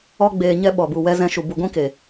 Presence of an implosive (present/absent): present